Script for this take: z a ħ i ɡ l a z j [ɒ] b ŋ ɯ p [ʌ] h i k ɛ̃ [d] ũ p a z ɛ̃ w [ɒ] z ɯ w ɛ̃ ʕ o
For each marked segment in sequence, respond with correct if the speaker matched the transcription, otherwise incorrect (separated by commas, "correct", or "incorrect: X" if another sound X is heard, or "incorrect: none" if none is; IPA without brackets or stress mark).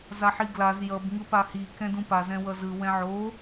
incorrect: ʌ, incorrect: a, correct, incorrect: ʌ